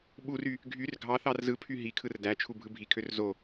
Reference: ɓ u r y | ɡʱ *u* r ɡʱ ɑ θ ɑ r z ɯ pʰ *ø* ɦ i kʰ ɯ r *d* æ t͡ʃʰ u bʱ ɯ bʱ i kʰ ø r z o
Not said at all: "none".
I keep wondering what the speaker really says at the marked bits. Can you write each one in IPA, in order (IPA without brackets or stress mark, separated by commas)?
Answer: y, y, d